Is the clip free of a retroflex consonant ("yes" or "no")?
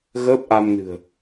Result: yes